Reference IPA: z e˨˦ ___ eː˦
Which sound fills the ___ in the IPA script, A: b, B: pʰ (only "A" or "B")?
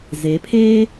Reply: B